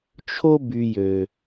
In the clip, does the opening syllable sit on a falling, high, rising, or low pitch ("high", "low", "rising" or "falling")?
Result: high